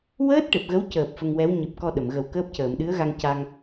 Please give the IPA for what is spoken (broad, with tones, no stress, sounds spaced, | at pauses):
w əː˦˥ t̚ ʈ e˨˩ p̚ ɣ ə˧˥ w c əː˨˩ p̚ f ə˧ ŋ w ɛ˧˥ w ɲ ɨ˨˩ p̚ k ɔ˧ ɗ ə˨˩˨ m ɣ ə˨˩ w k əː˦˥ p̚ c əː˨˩˨ m ɗ ɨ˧˥ ə̯ ɣ a˧ ŋ c a˧ ŋ